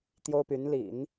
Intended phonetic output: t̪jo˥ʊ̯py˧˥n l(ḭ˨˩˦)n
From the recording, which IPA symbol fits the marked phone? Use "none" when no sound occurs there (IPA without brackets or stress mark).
ḭ˨˩˦